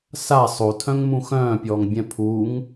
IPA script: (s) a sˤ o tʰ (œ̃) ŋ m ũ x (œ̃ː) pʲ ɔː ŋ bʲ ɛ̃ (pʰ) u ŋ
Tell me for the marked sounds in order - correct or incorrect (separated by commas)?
correct, correct, correct, correct